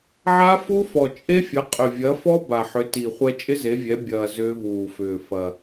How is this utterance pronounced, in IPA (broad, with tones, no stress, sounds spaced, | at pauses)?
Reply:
ʕ a˦˥ f u˦˥ f ɔ˨˩ t͡ʃʼ e˦˥ fʲ ɐ˨˦ qʼ ʏ˨˩ vʲ ɐ˨˦ f ɔ˦˥ b a˨˩ ħ ʏ˨˦ t i˨˩ χʷ ɛ˦˥ t͡ʃʼ ɪ˦˥ z e˨˦ vʲ ɛ˨˦ bʲ ɐː˨˩ z ʏː˦˥ v uː˨˩ f ʏː˨˩ f ɐ˨˩